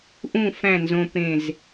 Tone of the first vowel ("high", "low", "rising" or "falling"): falling